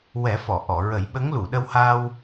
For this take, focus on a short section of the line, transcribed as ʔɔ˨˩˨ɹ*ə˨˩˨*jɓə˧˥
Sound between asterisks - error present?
yes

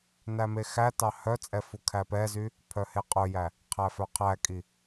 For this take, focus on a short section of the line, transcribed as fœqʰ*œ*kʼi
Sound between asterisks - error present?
yes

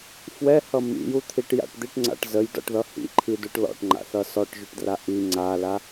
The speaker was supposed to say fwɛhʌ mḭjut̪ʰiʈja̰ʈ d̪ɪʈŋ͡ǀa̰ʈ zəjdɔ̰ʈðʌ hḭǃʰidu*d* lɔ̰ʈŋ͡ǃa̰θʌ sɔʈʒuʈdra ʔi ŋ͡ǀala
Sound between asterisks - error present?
yes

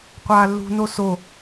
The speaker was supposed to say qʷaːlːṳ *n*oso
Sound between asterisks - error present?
no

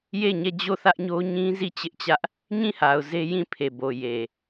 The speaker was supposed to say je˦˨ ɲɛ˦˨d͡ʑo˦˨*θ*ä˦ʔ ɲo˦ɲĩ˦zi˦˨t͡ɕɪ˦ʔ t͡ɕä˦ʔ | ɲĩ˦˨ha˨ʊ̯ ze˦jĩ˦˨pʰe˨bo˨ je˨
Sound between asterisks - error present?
no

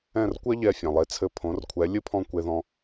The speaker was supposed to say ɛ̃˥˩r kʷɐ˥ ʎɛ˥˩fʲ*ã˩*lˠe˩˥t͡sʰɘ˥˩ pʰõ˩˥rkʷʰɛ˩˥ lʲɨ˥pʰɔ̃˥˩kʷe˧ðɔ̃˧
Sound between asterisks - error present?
no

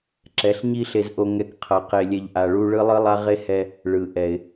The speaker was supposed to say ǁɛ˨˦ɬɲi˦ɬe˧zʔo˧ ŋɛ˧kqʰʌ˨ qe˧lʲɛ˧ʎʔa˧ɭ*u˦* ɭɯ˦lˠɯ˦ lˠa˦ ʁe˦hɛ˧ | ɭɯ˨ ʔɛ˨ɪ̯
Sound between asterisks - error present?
no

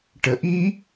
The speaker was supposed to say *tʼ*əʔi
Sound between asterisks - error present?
yes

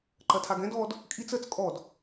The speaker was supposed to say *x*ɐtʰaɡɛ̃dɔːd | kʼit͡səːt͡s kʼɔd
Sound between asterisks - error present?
yes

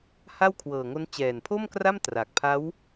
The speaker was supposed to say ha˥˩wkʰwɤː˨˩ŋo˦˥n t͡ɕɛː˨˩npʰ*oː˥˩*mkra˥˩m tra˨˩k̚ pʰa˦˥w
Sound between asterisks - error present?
yes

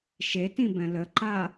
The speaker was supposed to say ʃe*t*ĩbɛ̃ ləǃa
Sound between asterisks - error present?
no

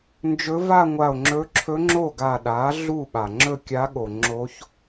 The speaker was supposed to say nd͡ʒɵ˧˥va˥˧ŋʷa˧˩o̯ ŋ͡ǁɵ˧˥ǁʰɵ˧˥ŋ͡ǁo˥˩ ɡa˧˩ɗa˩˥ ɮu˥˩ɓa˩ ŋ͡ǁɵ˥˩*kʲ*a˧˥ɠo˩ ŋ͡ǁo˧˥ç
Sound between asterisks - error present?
no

